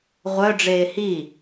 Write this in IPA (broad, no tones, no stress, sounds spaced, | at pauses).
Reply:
ʁʷ œ ɖ͡ʐ eː h i